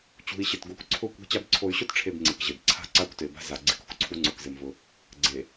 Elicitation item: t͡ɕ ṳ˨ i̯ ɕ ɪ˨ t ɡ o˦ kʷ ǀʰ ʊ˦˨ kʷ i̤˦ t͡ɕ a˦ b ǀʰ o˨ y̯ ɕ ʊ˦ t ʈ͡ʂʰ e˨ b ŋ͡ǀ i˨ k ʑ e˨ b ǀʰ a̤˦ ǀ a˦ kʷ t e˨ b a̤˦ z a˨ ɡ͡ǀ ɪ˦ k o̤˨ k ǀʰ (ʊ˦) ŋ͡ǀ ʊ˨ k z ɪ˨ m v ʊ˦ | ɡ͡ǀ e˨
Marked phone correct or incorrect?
incorrect